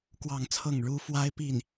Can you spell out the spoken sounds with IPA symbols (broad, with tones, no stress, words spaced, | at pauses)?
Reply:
kwɑ˥˧ŋt͡sʰɤ˥˩ŋ ɻu˥ fwa˥ɪ̯pi˥˩n